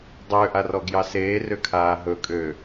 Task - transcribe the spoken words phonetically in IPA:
dˤ ø ʔ a r ɔ ɡ j ɑ s eː r ø kʰ aː ɦ ɵ kʼ ø

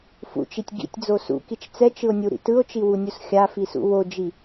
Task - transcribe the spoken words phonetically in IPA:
f ṵ t͡ʃ i tʲ ɡ ḭ tʲ d͡z o s ṵ k i t͡ʃ t͡s ɛ t͡ʃ ɯ o̯ nʲ u ɾ ḭ t ɯ o̯ t͡ʃ i w u nʲ u s xʲ a f i s ṵ w o d͡ʒ i

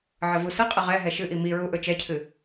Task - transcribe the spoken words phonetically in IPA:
ʕ ə v u s ə qʼ ə ʁ ɛ ɦ ɛ ʃ ɨ ʔ i m i ɹ u ʔ ɵ t͡ʃ ɛ cʰ ɨ

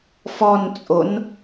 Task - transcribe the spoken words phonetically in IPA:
f ɔ n t͡sʼ o n

